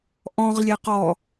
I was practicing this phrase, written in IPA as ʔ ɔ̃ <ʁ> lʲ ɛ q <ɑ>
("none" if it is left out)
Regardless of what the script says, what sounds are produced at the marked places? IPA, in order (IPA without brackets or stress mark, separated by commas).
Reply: ʁ, ɔ